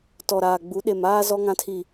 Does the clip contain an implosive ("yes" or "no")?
yes